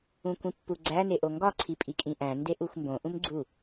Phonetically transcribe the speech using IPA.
ũ kʷ ĩ pː u ɡ͡ǀ æ n e ʔ o ŋ ɡ ɒ ǀʰ i pʼ i kʼ ĩ ʔ æ̃ n d e ʔ u xʷ m b õ ʔ ũ m ɡ͡ǀ u

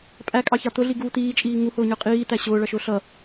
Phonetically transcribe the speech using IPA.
pʼ æ kʼ ɑ ç ɑ t̪ ʊ ɮ i ɡ uː t̪ iː t͡ʃʼ iː ŋ u h ʊː ɲ ə˞ qʼ iː t̪ æ ɕ ʊː ɭ ʌ ʃ ʊː ɬ ʌ

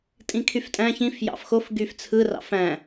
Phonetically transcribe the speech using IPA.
tʼ ĩ kʰ y f tʼ æ̃ ç ĩ f j ɑ̰ f x o f ɡ y f t͡sʰ ɯ r ɑ̰ f æ̃

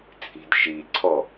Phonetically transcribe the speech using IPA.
t͡sʼ i̤ d ʃ i ǀʰ ɔ

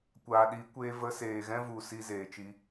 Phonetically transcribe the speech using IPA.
kʷ aː˨ ɗ i˨˦ kʷ eː˧ v ə˧ s eː˨ ɣ ɛ̃˦ v u˨ s i˧ z eː˨ t͡ʃ i˧

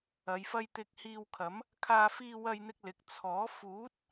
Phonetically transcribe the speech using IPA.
ɐ˨ j f ɐ˧ j t̪ ɪ˧ k̚ h iː˧ w kʰ ɐ˨˥ m | kʰ aː˧ f iː˧ w ɐ˧ j n̪ ɪ˧ k̚ l ɪ˨ k̚ t͡sʰ ɔː˨˥ f uː˨˥ t̚

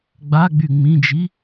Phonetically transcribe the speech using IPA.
ɡ͡b a ɡ͡b y ŋ͡m ĩ d͡ʒ i

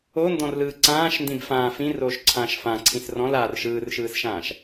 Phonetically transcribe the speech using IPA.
o n d ɔ̃ r l ɯː ǀ ãː ʃ n d ĩ b f ãː f ĩ r oː ʃ ǀʰ ãː ʃ f ã ǀʰ ĩ s r ɔ̃ l aː r ʃ ɯː r ʃ ɯː s ʃ ãː ʃ

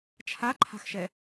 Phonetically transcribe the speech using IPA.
t͡ʃʰ a ǃʰ a̤ x ʃ ɛ

